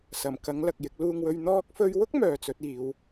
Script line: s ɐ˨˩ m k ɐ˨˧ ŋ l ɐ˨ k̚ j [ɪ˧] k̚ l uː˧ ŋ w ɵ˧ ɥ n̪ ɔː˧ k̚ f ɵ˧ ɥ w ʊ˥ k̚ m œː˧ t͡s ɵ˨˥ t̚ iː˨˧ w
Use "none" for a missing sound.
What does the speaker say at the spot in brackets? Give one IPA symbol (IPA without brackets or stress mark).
ɪ˧